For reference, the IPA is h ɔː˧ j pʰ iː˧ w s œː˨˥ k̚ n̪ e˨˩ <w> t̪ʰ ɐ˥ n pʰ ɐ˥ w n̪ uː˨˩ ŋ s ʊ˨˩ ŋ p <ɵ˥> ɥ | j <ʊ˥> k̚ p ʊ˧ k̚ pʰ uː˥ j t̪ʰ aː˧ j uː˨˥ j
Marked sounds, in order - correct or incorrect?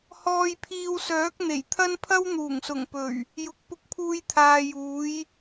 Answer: incorrect, incorrect, incorrect

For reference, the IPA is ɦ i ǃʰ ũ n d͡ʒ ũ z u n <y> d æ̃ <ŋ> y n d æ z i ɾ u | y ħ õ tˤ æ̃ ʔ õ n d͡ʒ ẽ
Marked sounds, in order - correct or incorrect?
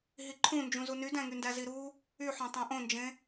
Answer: correct, correct

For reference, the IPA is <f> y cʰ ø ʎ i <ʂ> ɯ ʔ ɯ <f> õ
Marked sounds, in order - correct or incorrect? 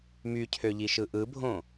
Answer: incorrect, incorrect, incorrect

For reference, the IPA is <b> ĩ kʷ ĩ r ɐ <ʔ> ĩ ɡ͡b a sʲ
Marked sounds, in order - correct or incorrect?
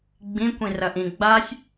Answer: incorrect, correct

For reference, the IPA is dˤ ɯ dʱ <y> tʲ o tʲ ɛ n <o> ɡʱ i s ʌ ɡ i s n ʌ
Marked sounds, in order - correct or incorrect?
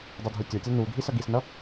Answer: incorrect, incorrect

